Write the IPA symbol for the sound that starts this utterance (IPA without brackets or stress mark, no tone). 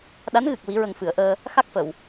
ɗ